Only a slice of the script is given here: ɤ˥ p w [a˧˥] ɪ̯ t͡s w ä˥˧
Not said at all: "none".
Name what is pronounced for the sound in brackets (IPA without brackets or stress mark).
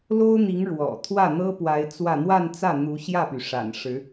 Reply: a˧˥